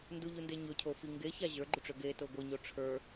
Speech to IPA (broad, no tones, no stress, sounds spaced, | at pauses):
n d u ʎ u n d e ɲ ɵ cʰ o f i ŋ ɡ e ç a ʑ ə˞ ɡ͡ǃ u ʈ͡ʂ ø ɡ e t o ɡʷ i ɲ o ʈ͡ʂʰ ə˞